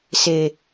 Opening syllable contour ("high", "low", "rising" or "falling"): low